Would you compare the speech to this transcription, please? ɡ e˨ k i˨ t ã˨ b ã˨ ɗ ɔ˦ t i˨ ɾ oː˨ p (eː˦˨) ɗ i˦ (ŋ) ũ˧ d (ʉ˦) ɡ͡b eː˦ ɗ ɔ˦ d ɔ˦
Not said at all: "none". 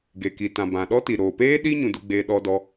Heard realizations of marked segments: eː˦, ɲ, u˦

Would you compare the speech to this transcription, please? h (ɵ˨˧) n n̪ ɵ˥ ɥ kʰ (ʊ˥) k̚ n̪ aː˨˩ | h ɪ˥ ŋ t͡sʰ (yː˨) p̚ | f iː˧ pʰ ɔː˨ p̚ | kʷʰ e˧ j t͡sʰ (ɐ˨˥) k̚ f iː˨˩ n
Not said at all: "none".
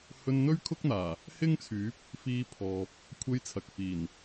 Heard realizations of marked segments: ɵ˧, ʊ˥, yː˨˥, ɐ˨

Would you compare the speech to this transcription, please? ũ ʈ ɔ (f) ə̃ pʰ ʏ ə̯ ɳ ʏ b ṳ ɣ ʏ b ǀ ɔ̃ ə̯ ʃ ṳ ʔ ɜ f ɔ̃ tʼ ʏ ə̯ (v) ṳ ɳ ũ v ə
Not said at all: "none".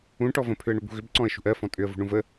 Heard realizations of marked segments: v, v

